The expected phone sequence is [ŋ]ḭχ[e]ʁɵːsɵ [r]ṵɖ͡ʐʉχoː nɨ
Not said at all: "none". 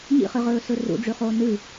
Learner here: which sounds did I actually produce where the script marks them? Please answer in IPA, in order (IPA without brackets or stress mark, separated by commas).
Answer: ɲ, ɨ, r